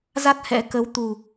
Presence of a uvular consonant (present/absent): absent